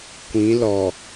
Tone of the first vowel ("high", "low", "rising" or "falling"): rising